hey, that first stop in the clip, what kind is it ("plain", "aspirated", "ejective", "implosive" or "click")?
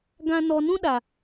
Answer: plain